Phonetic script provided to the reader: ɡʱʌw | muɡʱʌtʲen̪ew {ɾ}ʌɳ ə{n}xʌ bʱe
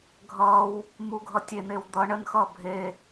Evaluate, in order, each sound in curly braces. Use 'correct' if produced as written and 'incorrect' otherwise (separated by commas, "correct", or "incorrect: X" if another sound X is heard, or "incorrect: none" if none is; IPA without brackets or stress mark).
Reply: incorrect: d̪, correct